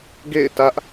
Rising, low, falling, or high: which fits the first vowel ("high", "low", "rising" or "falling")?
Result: falling